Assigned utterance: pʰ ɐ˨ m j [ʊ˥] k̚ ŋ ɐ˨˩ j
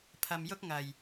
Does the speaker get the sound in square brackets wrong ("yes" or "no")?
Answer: no